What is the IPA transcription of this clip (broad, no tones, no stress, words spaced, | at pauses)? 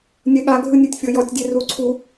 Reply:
nʲɛɠa ɡʱɯnʲetʲfʲɤjɔtʲ dʲeruǀʰu